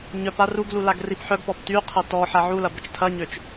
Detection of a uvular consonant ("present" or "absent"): present